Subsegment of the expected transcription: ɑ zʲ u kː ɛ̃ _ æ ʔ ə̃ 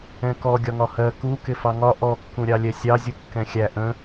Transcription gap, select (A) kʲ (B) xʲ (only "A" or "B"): B